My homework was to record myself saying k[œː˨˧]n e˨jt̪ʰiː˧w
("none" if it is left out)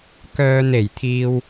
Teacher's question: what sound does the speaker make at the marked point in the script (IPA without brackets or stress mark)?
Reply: œː˥